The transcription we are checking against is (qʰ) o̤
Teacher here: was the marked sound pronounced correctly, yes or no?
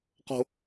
no